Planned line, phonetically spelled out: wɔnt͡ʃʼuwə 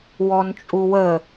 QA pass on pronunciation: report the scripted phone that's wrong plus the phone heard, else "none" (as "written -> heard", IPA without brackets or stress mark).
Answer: none